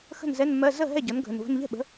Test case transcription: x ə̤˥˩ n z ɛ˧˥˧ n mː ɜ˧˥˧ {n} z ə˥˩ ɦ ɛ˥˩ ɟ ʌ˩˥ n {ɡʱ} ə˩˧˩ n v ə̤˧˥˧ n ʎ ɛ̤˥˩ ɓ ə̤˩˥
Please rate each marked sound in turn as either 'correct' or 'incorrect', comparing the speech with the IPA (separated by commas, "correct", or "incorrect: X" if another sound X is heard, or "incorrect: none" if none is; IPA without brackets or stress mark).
incorrect: none, correct